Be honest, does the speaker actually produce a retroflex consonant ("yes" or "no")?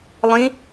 no